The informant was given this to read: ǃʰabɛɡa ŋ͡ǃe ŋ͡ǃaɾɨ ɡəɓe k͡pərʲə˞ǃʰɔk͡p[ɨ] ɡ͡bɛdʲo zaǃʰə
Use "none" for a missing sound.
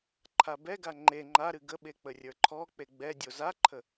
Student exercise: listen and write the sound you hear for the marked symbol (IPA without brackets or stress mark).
e